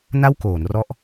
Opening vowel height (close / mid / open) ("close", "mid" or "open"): open